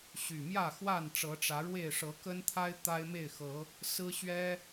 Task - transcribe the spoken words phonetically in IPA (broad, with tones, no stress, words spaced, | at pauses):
ɕy˨˩mjä˥˨xwa˥˨nʈ͡ʂɤ˨˦ ʈ͡ʂä˨˦ɻwe˥˨ɪ̯ ʂɤ˨˦kə˦nt̪ʰa˦ɪ̯ t̪a˦ɪ̯me˥˨ɪ̯xɤ˨˦ | sɹ̩˦ɕɥɛ˦